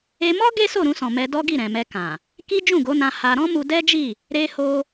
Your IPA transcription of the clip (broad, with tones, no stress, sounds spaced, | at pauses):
e˧ m ɔ˦ ɡ e˦ s o˦˨ ɾ ũ˧ s ɔ̃˨ m ɛ˧ d ɔ˦ ɡ i˦˨ ɾ ɛ̃˨ m ɛ˧ k ã˨ | k i˦ d͡ʒ ũ˦˨ ɡ o˨˦ n ã˧ h a˧ ɾ ɔ̃˦ m u˧ d ɛ˦ d͡ʒ i˦˨ | ɾ e˧ h o˧